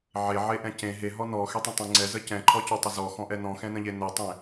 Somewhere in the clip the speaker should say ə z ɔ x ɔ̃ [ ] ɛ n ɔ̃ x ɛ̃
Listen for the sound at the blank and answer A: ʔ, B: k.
A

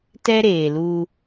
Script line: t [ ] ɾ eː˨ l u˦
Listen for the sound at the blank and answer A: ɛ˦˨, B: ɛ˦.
B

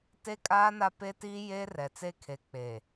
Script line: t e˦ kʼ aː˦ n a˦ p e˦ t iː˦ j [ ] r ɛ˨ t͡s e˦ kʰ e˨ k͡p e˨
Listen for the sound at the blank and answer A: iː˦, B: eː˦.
B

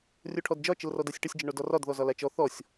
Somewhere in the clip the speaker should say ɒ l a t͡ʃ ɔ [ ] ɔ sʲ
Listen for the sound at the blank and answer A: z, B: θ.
B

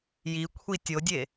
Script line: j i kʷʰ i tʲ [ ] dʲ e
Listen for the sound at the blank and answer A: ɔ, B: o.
B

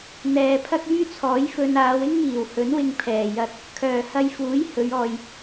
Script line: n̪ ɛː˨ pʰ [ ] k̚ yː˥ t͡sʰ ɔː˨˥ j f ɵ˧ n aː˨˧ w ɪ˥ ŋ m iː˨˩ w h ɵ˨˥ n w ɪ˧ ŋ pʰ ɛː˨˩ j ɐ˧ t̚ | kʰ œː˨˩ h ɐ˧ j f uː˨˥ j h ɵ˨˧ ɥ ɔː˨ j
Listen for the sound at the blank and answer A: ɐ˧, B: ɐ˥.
B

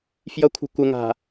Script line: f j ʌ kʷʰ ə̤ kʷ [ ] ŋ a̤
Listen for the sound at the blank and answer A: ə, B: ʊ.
A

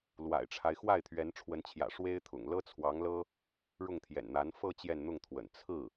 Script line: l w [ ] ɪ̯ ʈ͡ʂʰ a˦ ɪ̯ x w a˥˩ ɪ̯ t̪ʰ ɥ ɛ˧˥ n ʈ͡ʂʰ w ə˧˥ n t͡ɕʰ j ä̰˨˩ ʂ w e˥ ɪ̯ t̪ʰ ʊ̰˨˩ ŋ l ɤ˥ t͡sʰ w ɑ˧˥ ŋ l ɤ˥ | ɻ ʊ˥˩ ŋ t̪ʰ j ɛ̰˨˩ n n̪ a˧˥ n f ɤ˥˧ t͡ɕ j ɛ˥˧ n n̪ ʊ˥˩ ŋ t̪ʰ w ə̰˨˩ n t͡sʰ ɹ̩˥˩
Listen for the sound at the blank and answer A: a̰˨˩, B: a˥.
A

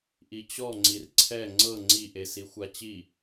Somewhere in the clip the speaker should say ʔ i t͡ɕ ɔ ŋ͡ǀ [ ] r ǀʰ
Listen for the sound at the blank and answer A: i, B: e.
A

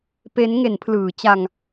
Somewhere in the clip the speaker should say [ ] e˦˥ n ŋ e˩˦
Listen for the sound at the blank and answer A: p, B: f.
A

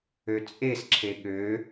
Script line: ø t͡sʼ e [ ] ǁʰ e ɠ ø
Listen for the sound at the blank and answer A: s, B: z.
A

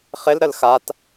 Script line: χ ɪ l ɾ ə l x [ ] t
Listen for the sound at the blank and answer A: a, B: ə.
A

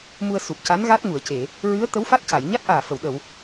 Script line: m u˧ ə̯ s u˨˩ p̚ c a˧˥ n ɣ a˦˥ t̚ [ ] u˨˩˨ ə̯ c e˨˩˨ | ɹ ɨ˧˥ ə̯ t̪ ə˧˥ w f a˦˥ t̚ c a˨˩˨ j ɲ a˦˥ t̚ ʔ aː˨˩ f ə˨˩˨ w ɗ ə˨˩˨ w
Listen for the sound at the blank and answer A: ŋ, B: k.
A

